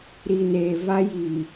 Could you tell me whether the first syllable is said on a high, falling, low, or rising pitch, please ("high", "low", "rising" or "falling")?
low